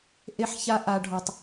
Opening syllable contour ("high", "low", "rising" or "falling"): high